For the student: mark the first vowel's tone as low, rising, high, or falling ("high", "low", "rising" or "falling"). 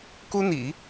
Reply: high